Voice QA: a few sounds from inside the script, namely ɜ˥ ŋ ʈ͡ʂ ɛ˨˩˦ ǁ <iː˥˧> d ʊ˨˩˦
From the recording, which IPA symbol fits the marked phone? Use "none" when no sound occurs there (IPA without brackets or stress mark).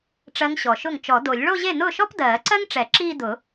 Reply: iː˥˧